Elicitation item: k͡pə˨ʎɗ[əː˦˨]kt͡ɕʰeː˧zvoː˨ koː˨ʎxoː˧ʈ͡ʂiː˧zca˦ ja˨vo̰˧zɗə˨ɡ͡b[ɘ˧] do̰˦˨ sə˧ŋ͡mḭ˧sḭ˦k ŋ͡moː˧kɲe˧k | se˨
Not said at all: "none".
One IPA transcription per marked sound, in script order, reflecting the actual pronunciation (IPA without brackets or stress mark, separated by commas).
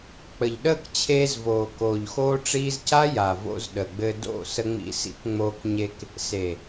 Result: əː˦˨, ɘ˧